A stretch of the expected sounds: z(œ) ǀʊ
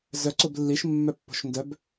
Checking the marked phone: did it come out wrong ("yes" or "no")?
no